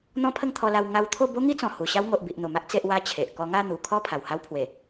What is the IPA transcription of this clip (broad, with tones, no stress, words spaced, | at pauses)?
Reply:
n̪ɔ̃˦pʰə˥˧ŋt̪ʰɔ˧la˧w ŋa˧wt̪ʰo˥˧ bo˦ŋi˦t͡sɔ̃˨˩ hu˨˩ ɕa˦w ŋo˨ʔbi˨ʔ n̪o˨˩ma˦ʔ t͡se˦ʔwa˦ t͡ɕʰe˨ʔ kɔ˧ŋa˥˧n̪u˨˩ kʰɔ˥˧ pʰa˨˩wha˦wpʰwe˨˩